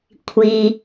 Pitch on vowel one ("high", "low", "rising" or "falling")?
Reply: low